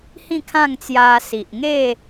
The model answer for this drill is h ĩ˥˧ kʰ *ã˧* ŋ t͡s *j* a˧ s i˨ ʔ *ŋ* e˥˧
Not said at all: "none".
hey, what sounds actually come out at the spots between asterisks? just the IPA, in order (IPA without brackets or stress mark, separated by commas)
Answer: ã˥˧, j, ŋ